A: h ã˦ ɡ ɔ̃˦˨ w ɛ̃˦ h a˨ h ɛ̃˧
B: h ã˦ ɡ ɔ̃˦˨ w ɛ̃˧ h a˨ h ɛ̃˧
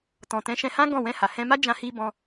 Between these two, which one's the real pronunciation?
B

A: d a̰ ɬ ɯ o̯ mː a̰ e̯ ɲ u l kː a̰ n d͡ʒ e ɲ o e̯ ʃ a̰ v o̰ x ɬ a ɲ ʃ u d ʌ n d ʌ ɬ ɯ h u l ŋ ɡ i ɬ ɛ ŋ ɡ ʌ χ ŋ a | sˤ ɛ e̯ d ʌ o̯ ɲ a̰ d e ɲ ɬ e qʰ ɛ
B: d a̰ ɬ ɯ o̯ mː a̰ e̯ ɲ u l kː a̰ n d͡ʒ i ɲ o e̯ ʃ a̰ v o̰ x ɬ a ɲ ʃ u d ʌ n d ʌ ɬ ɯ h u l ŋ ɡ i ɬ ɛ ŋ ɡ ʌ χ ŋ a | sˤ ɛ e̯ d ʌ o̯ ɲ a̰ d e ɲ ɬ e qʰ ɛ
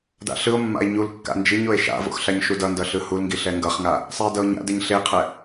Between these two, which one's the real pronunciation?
B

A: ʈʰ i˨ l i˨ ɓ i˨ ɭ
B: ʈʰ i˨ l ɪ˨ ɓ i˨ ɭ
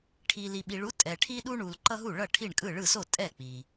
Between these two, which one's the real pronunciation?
A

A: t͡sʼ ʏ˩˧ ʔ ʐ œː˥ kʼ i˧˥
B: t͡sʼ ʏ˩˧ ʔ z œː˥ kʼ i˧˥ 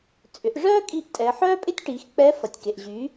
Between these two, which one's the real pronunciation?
A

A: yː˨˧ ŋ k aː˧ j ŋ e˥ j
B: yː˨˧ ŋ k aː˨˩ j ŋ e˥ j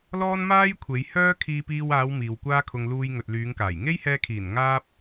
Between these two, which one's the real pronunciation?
B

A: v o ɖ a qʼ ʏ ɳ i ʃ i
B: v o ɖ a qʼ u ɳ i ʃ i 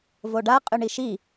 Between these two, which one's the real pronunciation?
A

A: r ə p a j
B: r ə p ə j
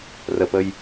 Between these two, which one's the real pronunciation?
B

